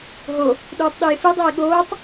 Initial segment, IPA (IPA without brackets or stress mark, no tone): ɦ